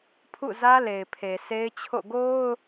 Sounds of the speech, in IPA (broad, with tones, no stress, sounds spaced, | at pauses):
pʰ ṵ˦˨ z ä˦ l e˨ ɪ̯ pʰ e˨ s e˦ ɪ̯ t͡ɕʰ o̰˦˨ ɡ o˦ ʊ̯